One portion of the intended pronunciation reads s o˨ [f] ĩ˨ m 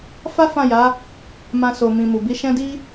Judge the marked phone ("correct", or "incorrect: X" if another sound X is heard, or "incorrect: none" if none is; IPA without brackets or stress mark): incorrect: m